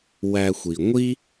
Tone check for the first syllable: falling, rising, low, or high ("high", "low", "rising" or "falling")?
low